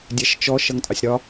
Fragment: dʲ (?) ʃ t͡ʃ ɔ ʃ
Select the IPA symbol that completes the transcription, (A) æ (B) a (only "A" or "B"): A